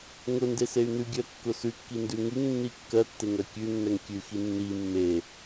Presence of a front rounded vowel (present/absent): present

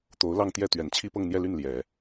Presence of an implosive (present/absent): absent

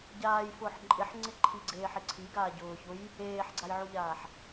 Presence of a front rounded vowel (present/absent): absent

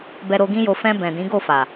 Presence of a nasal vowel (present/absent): present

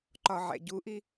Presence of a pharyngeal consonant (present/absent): present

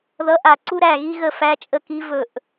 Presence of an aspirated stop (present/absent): absent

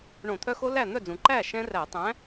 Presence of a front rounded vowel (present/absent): present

